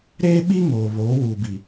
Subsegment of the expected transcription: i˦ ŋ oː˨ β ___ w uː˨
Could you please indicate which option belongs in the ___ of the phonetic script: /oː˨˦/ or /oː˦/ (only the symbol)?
oː˨˦